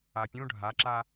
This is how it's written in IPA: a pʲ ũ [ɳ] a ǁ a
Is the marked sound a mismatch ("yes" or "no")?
yes